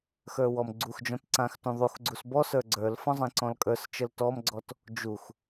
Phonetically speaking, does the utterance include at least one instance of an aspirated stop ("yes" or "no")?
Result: no